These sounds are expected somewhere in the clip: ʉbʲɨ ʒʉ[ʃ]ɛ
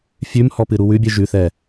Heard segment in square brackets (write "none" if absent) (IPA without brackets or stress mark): θ